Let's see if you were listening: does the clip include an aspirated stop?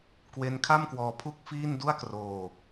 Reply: yes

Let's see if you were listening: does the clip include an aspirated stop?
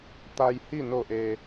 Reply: no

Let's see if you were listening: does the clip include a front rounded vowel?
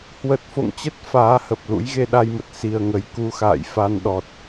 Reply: no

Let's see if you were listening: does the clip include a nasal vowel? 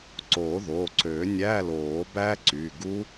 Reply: no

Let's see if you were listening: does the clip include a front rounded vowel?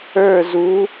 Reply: no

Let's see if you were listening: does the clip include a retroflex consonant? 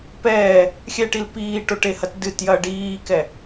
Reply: yes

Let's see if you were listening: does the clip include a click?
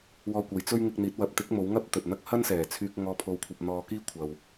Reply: no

